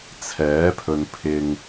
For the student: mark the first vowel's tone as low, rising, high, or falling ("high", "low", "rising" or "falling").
rising